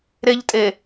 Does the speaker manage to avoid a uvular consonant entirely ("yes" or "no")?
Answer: yes